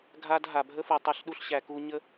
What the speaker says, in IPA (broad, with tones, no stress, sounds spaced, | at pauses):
ɡʱ a˦ d ɦ a˨ bʱ ə˦ f u˨ tˤ ə˧ ɬ ɗ u˧ ɬ ɕ æ˨ k u˧ ɲ ə˦